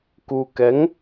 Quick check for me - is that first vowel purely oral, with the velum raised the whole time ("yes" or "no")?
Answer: yes